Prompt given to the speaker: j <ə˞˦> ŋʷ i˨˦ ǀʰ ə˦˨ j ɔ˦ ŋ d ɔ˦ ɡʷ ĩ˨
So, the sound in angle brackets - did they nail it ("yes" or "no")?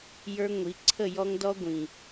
yes